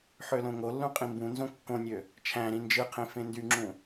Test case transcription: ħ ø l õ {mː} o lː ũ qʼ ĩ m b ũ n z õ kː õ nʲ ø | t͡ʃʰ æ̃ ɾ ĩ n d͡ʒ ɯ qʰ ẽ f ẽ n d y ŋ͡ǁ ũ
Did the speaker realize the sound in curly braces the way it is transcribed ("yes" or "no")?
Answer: no